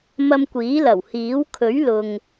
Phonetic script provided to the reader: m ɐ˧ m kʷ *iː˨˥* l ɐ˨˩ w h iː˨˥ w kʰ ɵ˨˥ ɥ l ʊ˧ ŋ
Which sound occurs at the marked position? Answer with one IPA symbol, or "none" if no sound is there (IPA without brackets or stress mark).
iː˨˥